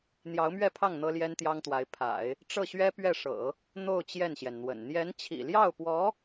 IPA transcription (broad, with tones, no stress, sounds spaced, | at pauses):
n̪ j ɑ˧˥ ʊ̯ m ɥ ɛ˥˧ pʰ ɑ˥˩ ŋ n̪ ɤ˥ l j ɛ˥ n t̪ j ɑ˥ ŋ t̪ w a˧˥ ɪ̯ pʰ a̰˨˩˦ ɪ̯ | ʈ͡ʂ ɤ˥˩ ɕ ɥ ɛ˥ p ɥ ɛ˥˩ ʂ ɤ̰˨˩˦ | n̪ o˥˧ ʊ̯ t͡ɕ j ɛ˥˩ n ɕ j ɛ˩ n n̪ w ə̰˨˩ n n̪ j ɛ˧˥ n t͡ɕʰ ḭ˨˩ l j ɑ˥˩ ʊ̯ p w ɔ˧˥